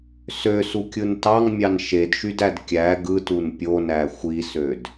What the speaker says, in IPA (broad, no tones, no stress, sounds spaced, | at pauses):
s ø s u kʲ ɯ n t ɑ ŋ mʲ ɑ n ʃ e d ʃ y d æ d kʲ æ ɡ ɯ t u n pʲ o n æ xʷ i s ø d